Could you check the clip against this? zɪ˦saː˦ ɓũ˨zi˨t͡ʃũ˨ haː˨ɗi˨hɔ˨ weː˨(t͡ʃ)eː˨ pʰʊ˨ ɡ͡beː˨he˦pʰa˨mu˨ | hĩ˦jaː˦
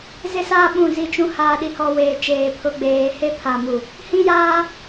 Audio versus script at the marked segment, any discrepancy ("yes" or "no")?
no